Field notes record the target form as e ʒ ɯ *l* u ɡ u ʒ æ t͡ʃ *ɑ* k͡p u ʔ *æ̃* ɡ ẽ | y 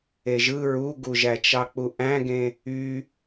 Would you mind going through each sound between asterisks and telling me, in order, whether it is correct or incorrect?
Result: incorrect, correct, correct

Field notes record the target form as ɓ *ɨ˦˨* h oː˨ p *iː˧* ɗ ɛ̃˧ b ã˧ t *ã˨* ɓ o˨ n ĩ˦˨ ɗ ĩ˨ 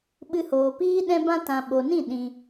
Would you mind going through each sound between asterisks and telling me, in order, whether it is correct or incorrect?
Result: incorrect, incorrect, correct

